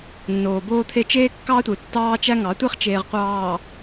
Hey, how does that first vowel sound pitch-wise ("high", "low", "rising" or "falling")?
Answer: low